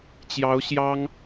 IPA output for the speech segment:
t͡ɕ j ɑ˧˥ ʊ̯ ɕ j ɑ˥ ŋ

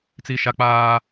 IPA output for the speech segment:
t͡s i˦ ʃ a˦ k͡p aː˦

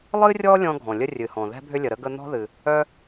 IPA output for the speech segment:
lˠ ɨ˥ rʲ ɔ˥ lʲ ɔ̃˥ ɡʱ ɔ̃˩ lʲ ə˥ rʲ ɨ˩ h ɔ̃˩ ð ɛ̤˥ bʱ ʏ˥ lʲ ə˩ ɾ ə˥ ɡ ə˥ n̪ ɔ̤˥ ð ɨ˩ | œ˥

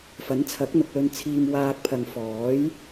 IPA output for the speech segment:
f ɐ˨˥ n t͡sʰ ɐ˨˥ k̚ n̪ ʊ˨ k̚ l ɵ˧ n t͡sʰ iː˧ m w aː˧ k̚ pʰ ɐ˨ ŋ f ɔː˨˥ j

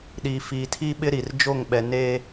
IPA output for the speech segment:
ɗ iː˨ f iː˨ tʰ i˦ ɓ ɪ˦ ɾ i˨ r d͡ʒ o˦˨ ŋ ɓ ɛ˨ n eː˨

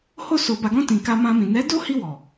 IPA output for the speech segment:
h o˧ s o˨ b a˨ ɡ ɔ̃˧ t ĩ˨ k a˧ m ã˧ m ĩ˨ n ɛ˨˦ d o˦ h i˧ w ɔ˨

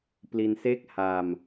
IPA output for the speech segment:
p l i˧ n s e˥˩ k̚ h a˧ m

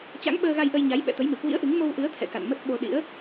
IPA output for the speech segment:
t͡ɕ a̰˧˥ ŋ ɓ əː˧ ɣ a˧ j ʔ ə˧ j ɲ a˨˦ j ɓ ɛ̰˧˨ t̪ ə˨˦ j m ɨ˨˩ k w ḭ˧˥ ə̯ ʔ ɨ˨˦ ŋ m o˧ w ʔ ɨ˨˦ ə̯ t̪ʰ ɛ̰˧˨ k a̰˧˨ n m ə˦˥ t̚ ɓ o˧ ɗ ḭ˧˥ ə̯

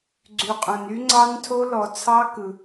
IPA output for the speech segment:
ɡ͡ǀ y˨ qʼ õ˨ n y˦˥ ŋ͡ǀ ɑ˦˥ n tʰ o˦˥ l ɔ˨ t͡sʰ ɑ˦˥ k ɯ˨

